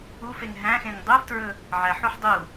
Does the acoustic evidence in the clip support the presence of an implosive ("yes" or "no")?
no